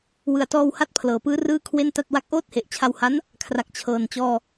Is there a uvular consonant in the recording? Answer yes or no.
no